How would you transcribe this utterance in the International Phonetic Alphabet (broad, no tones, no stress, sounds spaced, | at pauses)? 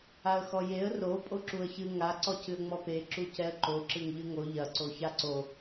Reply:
a ə̯ x ɔ j e ə̯ r o pʼ o ǁ u ə̯ ç ɨ ŋ a ǀ ɔ c ɨ ə̯ ŋ͡m ɔ p e ǁ u c ɛ ə̯ ǃ o ǁ ɨ ŋ ʎ ɨ ŋ o ʎ ɐ ǀ o ç a ǀ o